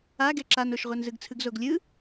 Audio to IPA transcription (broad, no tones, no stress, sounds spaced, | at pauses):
a ɡ ɛ ǁ a n o ʃ ʁʷ ɜ n z ɯ ɡ t͡sʰ ɯ ɡ z o ɡ lʲ ɯ